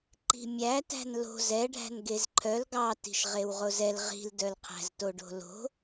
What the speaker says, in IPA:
ǃ i̤ mʲ æ t æ̤ n l o̤ z ɛ ɖʱ æ̤ n ɡ e z ǃʰ œ l ɡ ɑ t i̤ ʃ ʁ e w ʁ o z ɛ l ʁ i̤ l d œ l qʰ æ̤ z t o ɖ o̤ l o̤

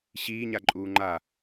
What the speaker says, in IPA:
ɕ iː ɲ a ǃʼ uː ŋ͡ǃ a

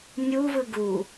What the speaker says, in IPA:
nʲ u v ɯ ɡ u

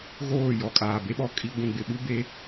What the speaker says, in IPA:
ɣ oː˦˨ j ɔ˨ kʼ aː˨ b e˦ ɓ ɔ˨ kʼ i˦ ɡʷ ũ˨ ɡ͡b ɪ˨ ɓ u˦ b e˨˦

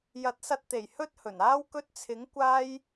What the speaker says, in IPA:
j ɐ˨˥ t̚ s ɐ˧ t̚ t̪ e˨˩ j h ɵ˥ t̚ h ɵ˨˩ n aː˥ w k ɵ˧ t̚ t͡sʰ ɪ˨˥ ŋ kʷ aː˥ j

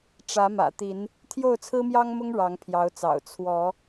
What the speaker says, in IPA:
ʈ͡ʂ ä˨˦ m ä̰˨˩ t̪ i˨˦ n | t̪ʰ j o˥˨ ʊ̯ t͡sʰ ɹ̩˦ m j ɑ˦ ŋ m ʊ˦ ŋ ɻ ɑ˨˦ ŋ pʰ j ɑ˨˦ ʊ̯ t͡s ɑ̰˨˩ ʊ̯ t͡sʰ w ɔ˨˦

